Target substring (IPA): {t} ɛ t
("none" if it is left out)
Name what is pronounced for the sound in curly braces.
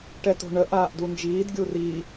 ʈ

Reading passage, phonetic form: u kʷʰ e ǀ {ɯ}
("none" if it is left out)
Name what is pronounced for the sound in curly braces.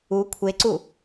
u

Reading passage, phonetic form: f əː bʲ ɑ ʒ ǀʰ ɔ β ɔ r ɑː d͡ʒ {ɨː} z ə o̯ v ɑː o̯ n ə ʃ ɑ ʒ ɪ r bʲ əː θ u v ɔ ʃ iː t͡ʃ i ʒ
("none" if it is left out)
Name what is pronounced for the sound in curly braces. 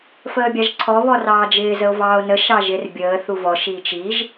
ɪː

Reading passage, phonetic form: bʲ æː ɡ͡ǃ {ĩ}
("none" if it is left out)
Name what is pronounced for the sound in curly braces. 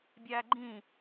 ĩ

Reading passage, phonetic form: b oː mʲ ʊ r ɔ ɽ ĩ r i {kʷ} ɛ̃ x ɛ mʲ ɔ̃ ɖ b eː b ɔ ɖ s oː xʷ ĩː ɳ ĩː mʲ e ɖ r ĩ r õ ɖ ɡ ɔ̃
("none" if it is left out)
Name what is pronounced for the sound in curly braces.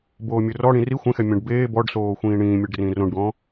xʷ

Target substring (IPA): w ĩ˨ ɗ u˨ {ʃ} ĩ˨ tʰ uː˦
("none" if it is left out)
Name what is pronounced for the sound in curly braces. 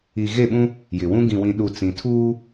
t͡s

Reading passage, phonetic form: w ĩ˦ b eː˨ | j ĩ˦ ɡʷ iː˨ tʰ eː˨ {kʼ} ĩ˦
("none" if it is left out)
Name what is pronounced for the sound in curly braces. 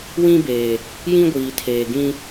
ɡ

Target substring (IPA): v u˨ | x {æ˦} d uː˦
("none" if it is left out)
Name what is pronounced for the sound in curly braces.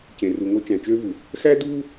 æ˦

